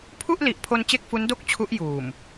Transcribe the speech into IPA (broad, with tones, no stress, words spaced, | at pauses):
pʰu˥˩ʔli˨˩ʔpʰo˧n t͡ɕe˥˩k̚fu˦˥ndo˥˩k̚ t͡ɕʰu˦˥ʔ juː˨˩m